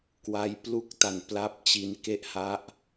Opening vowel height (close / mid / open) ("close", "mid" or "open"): open